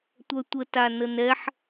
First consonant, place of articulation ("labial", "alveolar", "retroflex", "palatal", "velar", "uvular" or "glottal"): alveolar